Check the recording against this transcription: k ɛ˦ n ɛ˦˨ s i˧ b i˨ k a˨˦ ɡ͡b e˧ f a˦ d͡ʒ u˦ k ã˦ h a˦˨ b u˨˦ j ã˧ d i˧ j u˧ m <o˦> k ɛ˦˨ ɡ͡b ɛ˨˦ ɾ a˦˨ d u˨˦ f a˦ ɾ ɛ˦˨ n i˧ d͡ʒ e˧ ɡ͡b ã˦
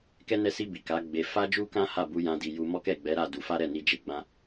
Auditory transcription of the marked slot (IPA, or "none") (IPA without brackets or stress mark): ɔ˦